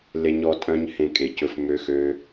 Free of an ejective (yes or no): no